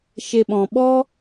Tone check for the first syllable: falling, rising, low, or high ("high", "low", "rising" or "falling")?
low